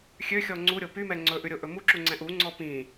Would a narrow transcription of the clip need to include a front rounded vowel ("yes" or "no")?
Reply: yes